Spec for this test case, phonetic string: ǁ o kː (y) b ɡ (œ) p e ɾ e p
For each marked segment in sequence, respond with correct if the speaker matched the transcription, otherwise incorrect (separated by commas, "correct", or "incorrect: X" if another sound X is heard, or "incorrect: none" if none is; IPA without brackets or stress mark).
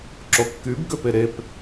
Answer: correct, incorrect: ø